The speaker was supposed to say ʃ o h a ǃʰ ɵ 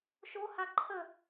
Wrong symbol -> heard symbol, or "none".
ɵ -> ə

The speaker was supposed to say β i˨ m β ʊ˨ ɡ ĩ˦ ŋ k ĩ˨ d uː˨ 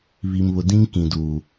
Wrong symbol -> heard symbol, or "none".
ɡ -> d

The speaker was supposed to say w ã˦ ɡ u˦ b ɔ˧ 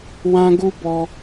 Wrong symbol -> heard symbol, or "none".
none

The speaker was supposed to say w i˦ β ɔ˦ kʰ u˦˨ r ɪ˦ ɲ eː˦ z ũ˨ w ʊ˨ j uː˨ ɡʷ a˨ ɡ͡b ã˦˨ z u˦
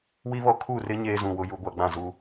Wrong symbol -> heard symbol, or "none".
uː˨ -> u˨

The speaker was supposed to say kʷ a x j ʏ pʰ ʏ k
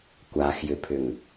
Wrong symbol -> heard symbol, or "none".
k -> ŋ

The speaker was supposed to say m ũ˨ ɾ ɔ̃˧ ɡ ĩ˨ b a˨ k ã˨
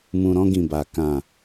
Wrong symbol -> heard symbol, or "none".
none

